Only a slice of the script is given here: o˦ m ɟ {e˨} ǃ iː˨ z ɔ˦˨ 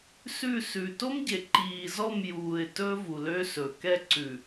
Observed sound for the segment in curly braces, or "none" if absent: e˨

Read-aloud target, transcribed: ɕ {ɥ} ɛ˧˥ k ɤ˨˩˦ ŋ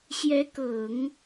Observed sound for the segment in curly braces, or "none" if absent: j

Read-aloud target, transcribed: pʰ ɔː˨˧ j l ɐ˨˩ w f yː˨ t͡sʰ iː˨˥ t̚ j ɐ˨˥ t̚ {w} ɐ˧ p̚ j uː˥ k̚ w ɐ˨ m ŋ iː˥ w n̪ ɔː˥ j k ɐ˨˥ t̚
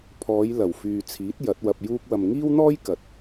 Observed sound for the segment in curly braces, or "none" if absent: w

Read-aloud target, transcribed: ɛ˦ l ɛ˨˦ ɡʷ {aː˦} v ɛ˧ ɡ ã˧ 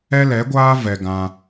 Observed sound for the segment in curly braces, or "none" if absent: aː˦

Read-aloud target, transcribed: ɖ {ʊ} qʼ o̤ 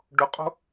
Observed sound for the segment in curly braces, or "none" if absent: ʊ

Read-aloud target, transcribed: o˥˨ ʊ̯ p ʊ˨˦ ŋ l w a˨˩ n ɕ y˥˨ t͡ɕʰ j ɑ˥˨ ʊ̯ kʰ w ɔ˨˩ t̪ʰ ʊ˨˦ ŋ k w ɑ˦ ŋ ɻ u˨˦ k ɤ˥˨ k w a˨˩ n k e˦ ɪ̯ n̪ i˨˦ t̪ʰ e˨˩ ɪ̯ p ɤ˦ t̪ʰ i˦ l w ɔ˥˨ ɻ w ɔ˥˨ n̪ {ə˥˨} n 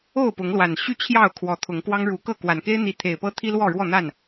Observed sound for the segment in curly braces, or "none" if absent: a˥˨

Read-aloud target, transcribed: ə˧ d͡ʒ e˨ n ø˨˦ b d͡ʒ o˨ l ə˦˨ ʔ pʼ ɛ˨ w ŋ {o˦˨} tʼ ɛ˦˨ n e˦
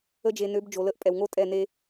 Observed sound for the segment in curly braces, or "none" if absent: o˦˨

